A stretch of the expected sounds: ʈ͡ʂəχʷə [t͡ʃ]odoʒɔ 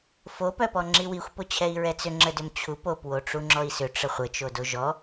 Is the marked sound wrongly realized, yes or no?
no